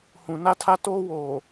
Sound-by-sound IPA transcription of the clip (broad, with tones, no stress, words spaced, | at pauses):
hũ˨na˦tʰa˦ toː˦ woː˨